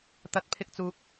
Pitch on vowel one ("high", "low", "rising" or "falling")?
rising